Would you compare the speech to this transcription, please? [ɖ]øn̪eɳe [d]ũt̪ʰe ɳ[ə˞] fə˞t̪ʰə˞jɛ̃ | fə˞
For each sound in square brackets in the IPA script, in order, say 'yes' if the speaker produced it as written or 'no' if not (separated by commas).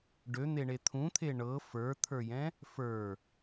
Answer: yes, no, no